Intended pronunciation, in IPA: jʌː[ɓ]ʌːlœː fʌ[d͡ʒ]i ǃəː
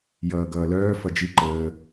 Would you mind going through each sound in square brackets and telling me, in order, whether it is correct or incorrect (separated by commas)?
incorrect, correct